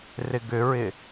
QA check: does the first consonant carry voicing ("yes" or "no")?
yes